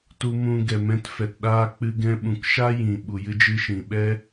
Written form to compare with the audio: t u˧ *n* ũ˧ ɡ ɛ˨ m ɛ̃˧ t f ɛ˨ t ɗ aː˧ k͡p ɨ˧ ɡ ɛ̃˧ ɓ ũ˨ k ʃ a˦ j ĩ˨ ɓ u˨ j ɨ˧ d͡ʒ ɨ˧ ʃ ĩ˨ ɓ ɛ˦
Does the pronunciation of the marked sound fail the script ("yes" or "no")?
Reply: yes